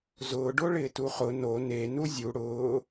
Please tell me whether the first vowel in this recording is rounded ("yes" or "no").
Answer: yes